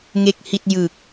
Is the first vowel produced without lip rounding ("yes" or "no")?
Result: yes